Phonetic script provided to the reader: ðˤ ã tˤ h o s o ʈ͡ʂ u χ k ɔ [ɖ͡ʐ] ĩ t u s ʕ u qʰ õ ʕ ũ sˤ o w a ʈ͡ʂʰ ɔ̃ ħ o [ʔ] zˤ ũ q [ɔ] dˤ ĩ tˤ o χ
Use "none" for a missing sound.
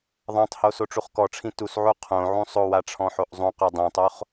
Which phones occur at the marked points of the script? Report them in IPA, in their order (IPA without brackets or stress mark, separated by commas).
ʈ͡ʂʰ, ʔ, o